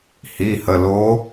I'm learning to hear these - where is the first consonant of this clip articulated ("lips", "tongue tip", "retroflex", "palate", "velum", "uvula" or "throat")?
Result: throat